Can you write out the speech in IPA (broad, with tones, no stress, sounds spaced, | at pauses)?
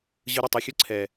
ʑ ɯ˧ ɾ ʌ˦˨ tˤ ɛ˧ xʲ ɯ˦ ǀʰ ɛ˨